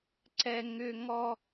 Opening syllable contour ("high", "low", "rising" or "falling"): high